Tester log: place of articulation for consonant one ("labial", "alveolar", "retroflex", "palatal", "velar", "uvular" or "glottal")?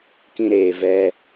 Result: velar